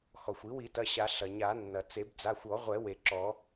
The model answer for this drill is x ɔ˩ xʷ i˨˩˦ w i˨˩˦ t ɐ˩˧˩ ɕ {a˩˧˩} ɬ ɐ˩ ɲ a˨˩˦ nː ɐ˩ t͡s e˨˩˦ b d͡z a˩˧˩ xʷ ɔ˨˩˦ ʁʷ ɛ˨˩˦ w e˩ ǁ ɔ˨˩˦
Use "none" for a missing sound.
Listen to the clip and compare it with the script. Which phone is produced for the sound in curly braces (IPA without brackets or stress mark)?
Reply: a˨˩˦